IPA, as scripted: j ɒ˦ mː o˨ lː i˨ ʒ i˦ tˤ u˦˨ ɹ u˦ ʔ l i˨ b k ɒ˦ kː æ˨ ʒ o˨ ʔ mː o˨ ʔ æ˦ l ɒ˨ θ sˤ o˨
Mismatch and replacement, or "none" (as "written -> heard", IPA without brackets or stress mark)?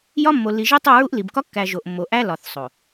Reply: none